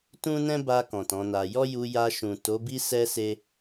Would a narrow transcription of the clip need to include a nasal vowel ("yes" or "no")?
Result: yes